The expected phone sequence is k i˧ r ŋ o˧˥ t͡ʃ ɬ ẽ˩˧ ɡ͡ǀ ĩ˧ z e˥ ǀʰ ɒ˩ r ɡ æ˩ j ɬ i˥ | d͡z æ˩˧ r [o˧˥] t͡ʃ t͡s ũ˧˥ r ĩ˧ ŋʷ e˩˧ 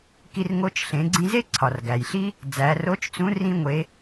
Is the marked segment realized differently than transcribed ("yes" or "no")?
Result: no